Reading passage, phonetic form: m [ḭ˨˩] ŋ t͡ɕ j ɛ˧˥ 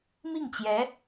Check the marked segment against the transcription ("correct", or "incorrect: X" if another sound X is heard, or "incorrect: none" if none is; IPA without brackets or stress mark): incorrect: i˥˩